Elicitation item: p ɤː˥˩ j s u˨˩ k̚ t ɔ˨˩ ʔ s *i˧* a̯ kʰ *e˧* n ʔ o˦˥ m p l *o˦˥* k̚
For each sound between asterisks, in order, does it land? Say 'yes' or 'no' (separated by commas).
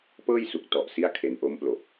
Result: no, yes, no